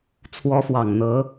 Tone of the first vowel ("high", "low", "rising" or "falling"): rising